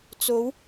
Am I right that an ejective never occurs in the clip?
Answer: yes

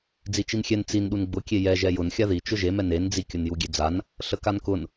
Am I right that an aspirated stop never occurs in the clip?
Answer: yes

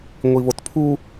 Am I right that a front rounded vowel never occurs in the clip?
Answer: yes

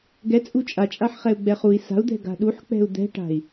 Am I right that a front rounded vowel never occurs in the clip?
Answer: yes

